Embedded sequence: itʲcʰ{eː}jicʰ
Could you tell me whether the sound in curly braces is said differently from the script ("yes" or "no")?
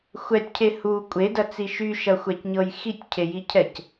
yes